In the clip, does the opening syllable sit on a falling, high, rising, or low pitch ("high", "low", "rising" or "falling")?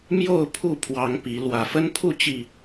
falling